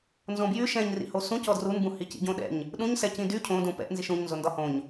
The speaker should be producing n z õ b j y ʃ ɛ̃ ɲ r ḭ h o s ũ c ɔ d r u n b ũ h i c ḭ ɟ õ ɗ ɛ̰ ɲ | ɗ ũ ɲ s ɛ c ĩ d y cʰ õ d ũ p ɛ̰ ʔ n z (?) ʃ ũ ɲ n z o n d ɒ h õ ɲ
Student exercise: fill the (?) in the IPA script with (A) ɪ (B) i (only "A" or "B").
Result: B